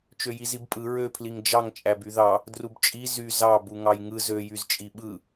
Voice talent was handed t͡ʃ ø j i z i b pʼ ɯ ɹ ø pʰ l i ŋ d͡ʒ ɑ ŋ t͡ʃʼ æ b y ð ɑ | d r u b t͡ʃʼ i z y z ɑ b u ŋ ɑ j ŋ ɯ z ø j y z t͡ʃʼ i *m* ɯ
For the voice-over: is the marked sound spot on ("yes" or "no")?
no